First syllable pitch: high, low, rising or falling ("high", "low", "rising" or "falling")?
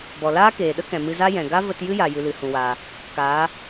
low